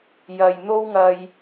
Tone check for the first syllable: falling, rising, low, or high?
low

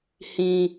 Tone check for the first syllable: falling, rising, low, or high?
high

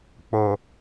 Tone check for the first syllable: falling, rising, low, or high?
low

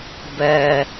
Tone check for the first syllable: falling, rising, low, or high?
low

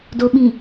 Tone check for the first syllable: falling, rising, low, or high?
low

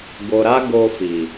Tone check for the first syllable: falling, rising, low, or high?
low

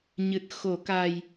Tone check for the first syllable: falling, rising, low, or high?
low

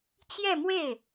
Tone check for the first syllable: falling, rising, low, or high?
falling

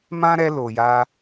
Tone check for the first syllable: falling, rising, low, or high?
high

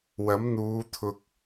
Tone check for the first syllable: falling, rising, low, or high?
rising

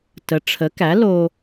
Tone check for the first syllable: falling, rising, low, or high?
rising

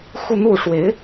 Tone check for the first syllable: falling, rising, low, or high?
falling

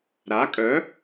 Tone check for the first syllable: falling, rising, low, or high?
rising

